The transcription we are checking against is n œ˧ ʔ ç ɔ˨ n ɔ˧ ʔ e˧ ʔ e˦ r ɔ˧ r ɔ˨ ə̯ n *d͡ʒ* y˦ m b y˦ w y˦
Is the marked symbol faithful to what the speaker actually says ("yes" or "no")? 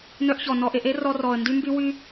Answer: no